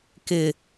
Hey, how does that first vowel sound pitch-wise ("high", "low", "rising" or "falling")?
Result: low